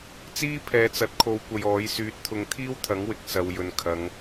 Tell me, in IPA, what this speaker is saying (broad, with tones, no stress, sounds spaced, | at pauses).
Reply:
t͡s iː˥ pʰ ɛː˨ t͡s ɐ˨˥ t̚ kʰ o˨˧ w kʷ ɐ˨ j ɔː˨˥ j s yː˨˥ t̚ t̪ʰ ʊ˨˧ ŋ t̪ʰ iː˥ w t̪ʰ ɐ˨˥ ŋ w ɪ˨ k̚ s ɐ˨ w j ɵ˨ n kʰ ɐ˨˧ ŋ